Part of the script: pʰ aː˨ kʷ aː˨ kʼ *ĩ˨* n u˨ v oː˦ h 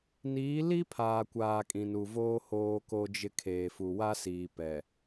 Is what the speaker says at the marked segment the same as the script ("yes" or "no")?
yes